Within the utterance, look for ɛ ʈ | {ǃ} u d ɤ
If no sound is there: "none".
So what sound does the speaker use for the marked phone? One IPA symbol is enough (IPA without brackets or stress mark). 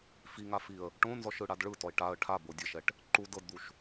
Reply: ǃ